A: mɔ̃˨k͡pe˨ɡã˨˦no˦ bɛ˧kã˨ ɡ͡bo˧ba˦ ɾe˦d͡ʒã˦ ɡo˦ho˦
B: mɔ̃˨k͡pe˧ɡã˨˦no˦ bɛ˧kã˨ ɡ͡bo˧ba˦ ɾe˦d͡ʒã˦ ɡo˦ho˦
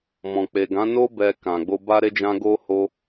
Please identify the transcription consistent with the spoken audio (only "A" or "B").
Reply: A